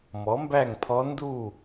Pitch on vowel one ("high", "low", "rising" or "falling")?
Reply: rising